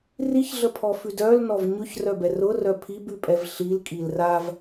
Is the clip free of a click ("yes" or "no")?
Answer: yes